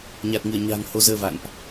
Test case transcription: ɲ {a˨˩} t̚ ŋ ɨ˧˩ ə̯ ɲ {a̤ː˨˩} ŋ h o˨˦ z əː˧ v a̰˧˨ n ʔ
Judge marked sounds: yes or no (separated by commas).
yes, yes